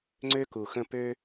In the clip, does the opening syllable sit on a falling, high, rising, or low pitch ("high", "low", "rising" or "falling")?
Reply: high